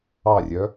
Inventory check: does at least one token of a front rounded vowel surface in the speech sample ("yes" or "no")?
yes